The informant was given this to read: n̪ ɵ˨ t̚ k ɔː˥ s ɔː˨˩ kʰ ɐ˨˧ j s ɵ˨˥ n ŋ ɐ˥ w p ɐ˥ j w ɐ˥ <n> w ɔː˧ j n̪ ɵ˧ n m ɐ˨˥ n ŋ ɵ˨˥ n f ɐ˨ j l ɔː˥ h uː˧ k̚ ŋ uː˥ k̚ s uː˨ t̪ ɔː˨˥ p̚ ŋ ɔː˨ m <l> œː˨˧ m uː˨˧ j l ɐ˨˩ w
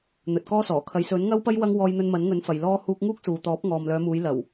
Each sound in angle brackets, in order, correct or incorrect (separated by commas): incorrect, correct